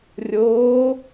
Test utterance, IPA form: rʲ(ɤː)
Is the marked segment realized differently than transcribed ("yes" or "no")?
yes